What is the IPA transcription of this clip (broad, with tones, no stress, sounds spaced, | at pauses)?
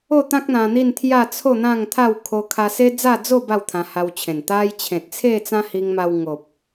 o˥˧ t̪ ã˦ k̚ n̪ ã˧ n̪ i˥˧ n t̪ʰ j a˥˧ t͡sʰ o˥˧ n̪ ã˥˧ ŋ t̪ʰ a˥˧ w kʰ o˧ kʰ a˧ s e˦ d͡z a˥˧ d͡z o˥˧ b a˥˧ w t̪ʰ ã˧ h a˧ w t͡ɕʰ ẽ˨˩ n t̪ a˧ j t͡ɕʰ ẽ˨ t̚ t͡sʰ e˥˧ t͡s ã˦ h i˧ ŋ m a˧ w ŋ o˨ p̚